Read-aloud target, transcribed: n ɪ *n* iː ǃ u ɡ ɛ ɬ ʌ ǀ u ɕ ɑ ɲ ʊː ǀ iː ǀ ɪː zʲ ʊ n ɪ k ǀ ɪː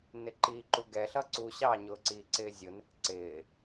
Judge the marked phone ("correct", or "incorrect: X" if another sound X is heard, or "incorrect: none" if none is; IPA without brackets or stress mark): incorrect: ǃ